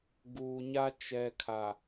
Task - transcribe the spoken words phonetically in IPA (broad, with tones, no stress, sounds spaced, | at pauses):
ɡ uː˨ ɲ a˦ t͡ʃ ɛ˨ kʰ a˨